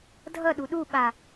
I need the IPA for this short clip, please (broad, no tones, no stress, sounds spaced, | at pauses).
dʱ ʌ ɗ u ɗ u ɓ a